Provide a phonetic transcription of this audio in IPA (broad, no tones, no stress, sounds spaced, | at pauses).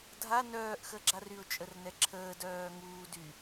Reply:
dʱ a n œː ʔ x əː ɡ͡ǁ a r y ʊ̯ t͡ʃʼ ə r n ɛ ǁʰ əː d œː ŋ uː d y